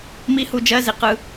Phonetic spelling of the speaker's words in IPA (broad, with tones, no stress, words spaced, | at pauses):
mi˦˥hu˧d͡ʒɜ˧˥˧zi˧ qɯ˧